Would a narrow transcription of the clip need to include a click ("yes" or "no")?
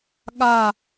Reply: no